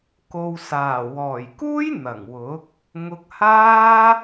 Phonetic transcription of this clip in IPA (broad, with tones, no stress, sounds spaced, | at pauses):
k o˨ w s aː˨˩ w ɔː˨˩ j k uː˥ j n̪ ɐ˨˩ ŋ w ʊ˨˥ k̚ | ŋ ʊ˧ k̚ h aː˥